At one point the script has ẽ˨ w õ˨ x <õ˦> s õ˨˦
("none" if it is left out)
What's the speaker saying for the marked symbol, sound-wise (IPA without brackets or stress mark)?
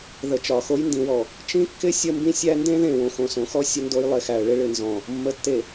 õ˨